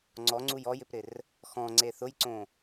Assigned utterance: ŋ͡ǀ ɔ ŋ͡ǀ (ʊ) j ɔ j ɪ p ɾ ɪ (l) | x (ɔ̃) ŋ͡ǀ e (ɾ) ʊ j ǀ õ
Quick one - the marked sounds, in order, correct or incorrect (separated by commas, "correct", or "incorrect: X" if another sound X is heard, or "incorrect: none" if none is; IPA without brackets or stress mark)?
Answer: incorrect: u, incorrect: r, correct, incorrect: θ